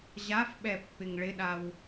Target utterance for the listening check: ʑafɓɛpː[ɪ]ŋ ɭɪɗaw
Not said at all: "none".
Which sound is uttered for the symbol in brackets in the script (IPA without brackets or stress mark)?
ɪ